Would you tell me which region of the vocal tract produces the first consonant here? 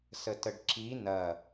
tongue tip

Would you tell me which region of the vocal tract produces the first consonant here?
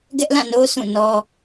velum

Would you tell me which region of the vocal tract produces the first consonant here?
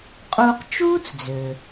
uvula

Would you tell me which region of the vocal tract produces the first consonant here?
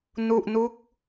tongue tip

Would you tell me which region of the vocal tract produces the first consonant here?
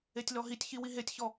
tongue tip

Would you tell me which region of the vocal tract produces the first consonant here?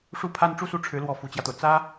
retroflex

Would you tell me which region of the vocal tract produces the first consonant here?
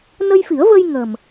tongue tip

